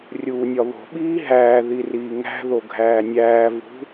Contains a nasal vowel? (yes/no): no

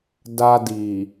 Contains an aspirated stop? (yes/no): no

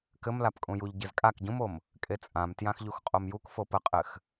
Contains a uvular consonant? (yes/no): yes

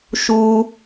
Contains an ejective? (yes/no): no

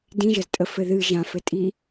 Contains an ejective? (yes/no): yes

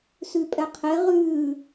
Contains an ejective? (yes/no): yes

